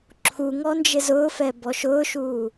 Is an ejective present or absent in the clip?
absent